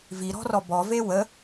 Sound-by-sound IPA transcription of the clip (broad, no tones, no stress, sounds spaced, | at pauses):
v i ɾ ɔ̤ r ɔ b ɔ v e w ə